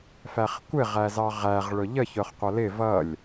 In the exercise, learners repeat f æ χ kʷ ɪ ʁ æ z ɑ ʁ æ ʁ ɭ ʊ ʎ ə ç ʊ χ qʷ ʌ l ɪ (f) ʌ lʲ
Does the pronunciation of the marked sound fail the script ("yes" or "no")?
yes